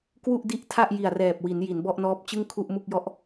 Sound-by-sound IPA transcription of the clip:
kwu˥˩ʔdi˥˩ʔtʰa˥˩ʔ ji˨˩a̯rɛː˨˩p̚wi˩˦n ji˩˦nbɔ˥˩ʔnɔː˦˥p̚ t͡ɕɯ˥˩ŋ kʰu˥˩ʔmu˥˩k̚jɔ˦˥ʔ

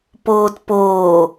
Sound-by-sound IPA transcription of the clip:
poːtpoː

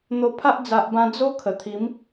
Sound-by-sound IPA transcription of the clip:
n̪o˧pʰa˦ʔ d͡za˨ʔbã˧ d͡zo˦ kʰə˨˩t̪ʰi˨˦m

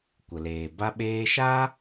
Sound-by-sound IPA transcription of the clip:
kʷə˨leː˨ ba˧ɓeː˧ʃaː˦

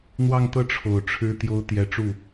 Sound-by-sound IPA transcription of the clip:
n̪wɑ˥˧ŋt̪ɤ˥˩ ʈ͡ʂʰo˨˩ʊ̯ʈ͡ʂʰɻ̩˥t̪jo˥ʊ̯ t̪jɛ˧˥ʈ͡ʂu˥˩

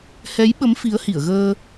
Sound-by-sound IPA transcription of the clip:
hɛ˨˦jɓə˨˦m fi˨˦ə̯hi˧˩ə̯ɣəː˧

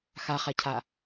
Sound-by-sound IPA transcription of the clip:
xaχacʰa

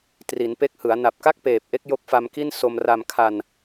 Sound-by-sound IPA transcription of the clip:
tri˩˦npe˦˥k̚hɯ˩˦a̯ na˨˩p̚ka˥˩k̚peː˨˩p̚ʔe˦˥k̚ jo˦˥k̚fa˧mki˥˩n so˧mra˧mkʰa˧n

